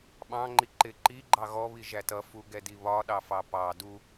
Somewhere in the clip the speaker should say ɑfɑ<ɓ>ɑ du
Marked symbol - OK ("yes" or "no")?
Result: no